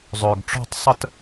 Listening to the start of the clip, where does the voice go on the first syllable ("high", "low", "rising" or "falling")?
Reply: low